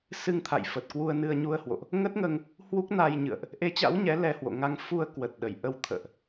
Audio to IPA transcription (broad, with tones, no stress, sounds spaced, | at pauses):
s ɨ˧ ŋ t̪ʰ a̰˧˨ j f ə˨˩ t̚ k w u˧ ə̯ n ɨ˧ ə̯ ɲ u˧ ə̯ h w o̰˧˨ ʔ | ŋ ə˦˥ t̚ ŋ əː˧ ŋ | h w u˦˥ k̚ n a˧ j ɲ ɨ̰˧˨ ə̯ ʔ | ʔ e˨˦ t͡ɕ a̰˧˥ w ɲ ɛ˨˦ l ɛ˧ h w o̰˧˨ ŋ a˧ ŋ f u˧ ə̯ k w ə˨˩ t̚ ɗ ə˧˩ j ʔ ə˧ w t̪ʰ ə̰ː˧˨ ʔ